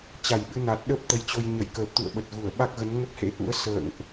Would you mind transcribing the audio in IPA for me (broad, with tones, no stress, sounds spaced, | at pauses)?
t͡ɕ a˧˩ j ɓ ɨ˧ n a˨˩ t̚ ɗ ə˦˥ p̚ t̪ ə˨˦ j t͡ɕ o˧ j ɲ ə˧˩ j k əː˨˩ p̚ t̪ ṵ˧˨ ə̯ ɓ ə˨˩ t̚ ɣ u˧˩ ə̯ ɓ a˦˥ k̚ ɣ ə˨˦ n ŋ ə˦˥ p̚ h ḛ˧˥ ʔ ṵ˧˥ ə̯ s ə̰ː˧˨ ŋ ʔ